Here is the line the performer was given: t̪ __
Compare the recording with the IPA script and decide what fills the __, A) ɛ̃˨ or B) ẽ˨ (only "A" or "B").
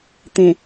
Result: B